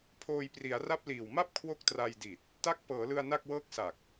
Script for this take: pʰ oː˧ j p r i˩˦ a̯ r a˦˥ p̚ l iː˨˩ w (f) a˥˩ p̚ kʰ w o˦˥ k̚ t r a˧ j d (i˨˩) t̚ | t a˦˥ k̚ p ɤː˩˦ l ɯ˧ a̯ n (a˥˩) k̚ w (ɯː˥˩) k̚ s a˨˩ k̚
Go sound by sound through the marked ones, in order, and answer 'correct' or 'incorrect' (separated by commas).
incorrect, correct, correct, incorrect